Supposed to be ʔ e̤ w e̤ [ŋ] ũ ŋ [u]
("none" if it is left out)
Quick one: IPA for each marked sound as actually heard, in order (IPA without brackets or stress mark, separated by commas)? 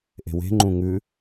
ŋ͡ǃ, ʉ